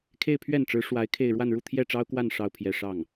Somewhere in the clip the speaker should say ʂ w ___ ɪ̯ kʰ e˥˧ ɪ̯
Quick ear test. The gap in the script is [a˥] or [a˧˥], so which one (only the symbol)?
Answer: a˧˥